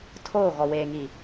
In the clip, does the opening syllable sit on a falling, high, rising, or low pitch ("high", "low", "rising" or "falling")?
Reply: falling